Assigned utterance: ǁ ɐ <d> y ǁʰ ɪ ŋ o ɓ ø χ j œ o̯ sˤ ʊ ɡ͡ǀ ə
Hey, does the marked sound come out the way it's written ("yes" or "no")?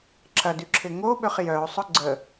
yes